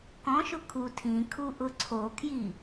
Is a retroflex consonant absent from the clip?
yes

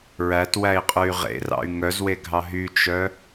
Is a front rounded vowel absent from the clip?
no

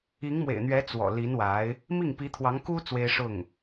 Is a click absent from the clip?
yes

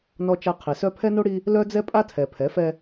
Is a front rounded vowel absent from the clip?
no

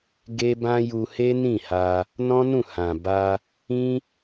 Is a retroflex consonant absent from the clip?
yes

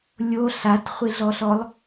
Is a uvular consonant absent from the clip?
no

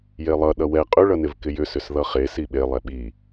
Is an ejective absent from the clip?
no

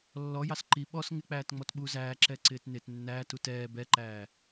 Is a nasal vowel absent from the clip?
yes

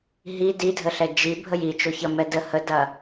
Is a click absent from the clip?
yes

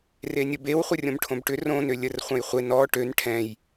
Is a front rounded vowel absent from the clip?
no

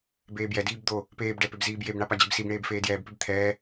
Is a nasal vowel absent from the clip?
yes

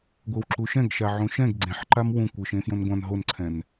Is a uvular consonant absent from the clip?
yes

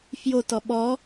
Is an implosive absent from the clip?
no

